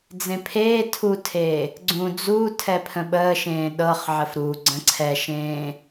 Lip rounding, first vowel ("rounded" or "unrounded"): unrounded